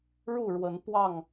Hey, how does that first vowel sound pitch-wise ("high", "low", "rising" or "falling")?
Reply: falling